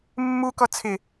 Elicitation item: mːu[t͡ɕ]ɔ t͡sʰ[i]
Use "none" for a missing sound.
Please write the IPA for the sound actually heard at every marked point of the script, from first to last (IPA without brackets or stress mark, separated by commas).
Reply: k, ɪ